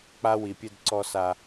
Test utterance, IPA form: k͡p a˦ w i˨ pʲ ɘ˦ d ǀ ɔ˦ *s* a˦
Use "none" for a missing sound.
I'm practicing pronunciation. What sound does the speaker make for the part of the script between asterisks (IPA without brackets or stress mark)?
s